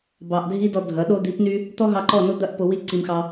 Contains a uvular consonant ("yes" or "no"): no